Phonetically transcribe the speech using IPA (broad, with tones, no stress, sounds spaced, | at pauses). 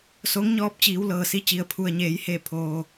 s o˧˥ ŋ ɲ ɔː˧ p̚ t͡ɕ iː˩˧ w l ɤː˩ s i˧ t͡ɕ i˩ ə̯ pʰ u˩ ə̯ ɲ eː˩˧ j h e˧˩ pʰ oː˩